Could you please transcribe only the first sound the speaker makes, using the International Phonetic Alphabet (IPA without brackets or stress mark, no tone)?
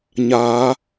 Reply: ɲ